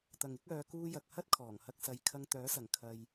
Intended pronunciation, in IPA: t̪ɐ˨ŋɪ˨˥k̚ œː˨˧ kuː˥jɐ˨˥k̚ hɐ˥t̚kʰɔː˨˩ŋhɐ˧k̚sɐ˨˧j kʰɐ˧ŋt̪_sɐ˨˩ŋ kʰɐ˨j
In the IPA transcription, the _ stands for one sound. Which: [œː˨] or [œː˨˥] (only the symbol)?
œː˨˥